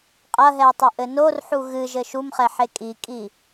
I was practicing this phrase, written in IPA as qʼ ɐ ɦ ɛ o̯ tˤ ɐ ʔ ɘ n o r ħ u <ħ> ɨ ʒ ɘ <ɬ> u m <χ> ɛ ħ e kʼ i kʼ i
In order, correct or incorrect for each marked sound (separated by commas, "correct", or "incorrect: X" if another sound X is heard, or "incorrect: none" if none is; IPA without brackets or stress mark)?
incorrect: ɣ, incorrect: ʃ, correct